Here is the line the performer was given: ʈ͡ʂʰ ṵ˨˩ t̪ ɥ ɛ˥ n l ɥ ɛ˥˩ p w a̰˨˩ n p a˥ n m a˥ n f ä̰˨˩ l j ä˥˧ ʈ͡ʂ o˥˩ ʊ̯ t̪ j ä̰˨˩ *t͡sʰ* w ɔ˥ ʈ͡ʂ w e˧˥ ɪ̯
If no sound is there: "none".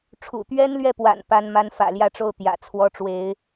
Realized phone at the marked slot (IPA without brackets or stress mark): t͡sʰ